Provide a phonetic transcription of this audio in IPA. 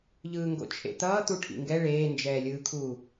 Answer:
ʎ ɯː ŋ ɡ o̰ t͡ʃʰ ḛ t̪ ʌː t̪ u ʈʰ ḭ ŋ ɡ ɛ ɭ eː n d͡ʒ ɛː lʲ ɯː kʰ uː

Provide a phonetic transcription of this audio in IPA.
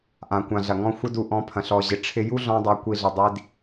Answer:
ʔ ã˨ kʷ ã˨ ɮ ɐ˨ ŋ ɔ̃˦ xʷ ɪ˧ d u˨ ʔ ɔ̃˨˦ pʰ ɐ̃˨ ɬ ɔ˨ ʑ ɪ˨ ʈ͡ʂʰ ɪ˧ j u˦ ɮ ɔ̃˧ dˤ a˧ kʷ i˧ ɮ ɪ˨ dˤ i˧ d

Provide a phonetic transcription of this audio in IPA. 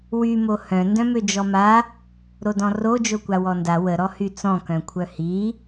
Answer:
w y m o h œ̃ n d œ̃ m ø d͡ʒ ɔ m a | ɾ o d ɔ̃ r o d͡ʒ o kʷ a w ɔ n d a w ə ɾ ɔ h y t͡s ɔ̃ k œ̃ kʷʰ œ h i

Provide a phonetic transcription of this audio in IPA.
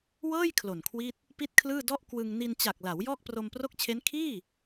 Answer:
w ɤː˥˩ j kʰ l o˨˩ n kʰ w i˥˩ t̚ | p i˥˩ t̚ kʰ l ɯː˥˩ d ɔ˥˩ ʔ k w ɯ˧ ŋ n i˧ n t͡ɕ a˨˩ k̚ l a˩˦ w j ɔː˥˩ k̚ p r o˧ m p r o˥˩ k̚ t͡ɕʰ e˦˥ n kʰ iː˥˩

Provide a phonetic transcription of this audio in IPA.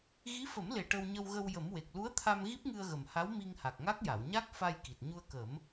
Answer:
ɣ i˧˥ f ə˨˩˦ m l e˨˩ ʈ ə˧ w ɲ ə˧ w ɣ ə˧ w j ə˨˩˦ m w e˨˩ k̚ l u˧˥ ə̯ t̪ʰ a˧ m ɣ i˦˥ p̚ ŋ ɨ˧ ə̯ ɣ ə˨˩ m h a˧˥ w m i˧ ŋ h a˨˩ k̚ ŋ a˦˥ k̚ j a˨˩˨ w ɲ a˦˥ k̚ f a˧ j k i˨˩ t̚ ɲ u˧ ə̯ k ə˨˩˦ m

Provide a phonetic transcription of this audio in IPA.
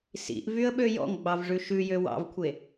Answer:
s ḭ ʔ v y ə̯ ɓ ø j ɔ̰ ŋ ɡ͡b ɑ v ʐ ʉ ʃ ʉ j ø w ɑ̰ v kʷʰ e

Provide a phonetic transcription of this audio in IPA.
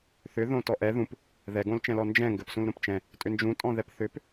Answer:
θ ʏ ð õ t ɔ ʔ ɛ ð ũ p | ð ɛ ɡ õ l t͡ʃ ɛ̃ l ɔ n d͡ʒ ɛ̃ ŋ ɡ ɘ p s ũ l ɾ õ p t͡ʃ ɛ̃ | tʼ ʏ n d͡ʒ ũ tʼ ɔ̃ ð ɛ p θ ʏ p

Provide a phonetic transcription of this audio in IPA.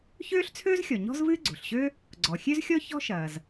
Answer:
ç øː˥ ɬ t͡sʰ øː˥ z xʲ ɔ˩ ɲ ɔ̤˥ z v ɨː˥ ɡ͡ǀ o̤˩ ɬ ɕ ø˥ | ɡ͡ǀ ɔ˩ xʲ ø˥ z xʲ ɔ˥ ç ɔ̤˥ ʃ ɐː˩ z

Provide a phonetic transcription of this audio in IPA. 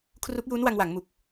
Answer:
kʰ r u˦˥ k̚ j uː˦˥ n w a˧ ŋ w a˩˦ ŋ m u˨˩ k̚

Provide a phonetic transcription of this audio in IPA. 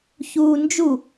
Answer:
ç uː n d͡ʒ u

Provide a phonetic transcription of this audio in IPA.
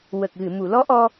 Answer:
w ə˨˩ k̚ ɣ ɨ˨˩˨ m u˨˩˨ l ɔ˧˥ ʔ ɔ˧

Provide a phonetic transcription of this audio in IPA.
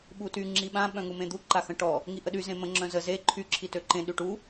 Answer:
ɓ u t y ŋ͡ǁ i ɓ ã ɓ œ̃ ŋ u m ẽ d̪ u ǃ a x ə̃ ʈ ɔ | ŋ i ʔ ə ɗ y z ẽ m ə̃ ŋ͡ǁ œ̃ z ə z e ǃʰ y ǁʰ i t ø ǃ ẽ ɗ y ʈ u

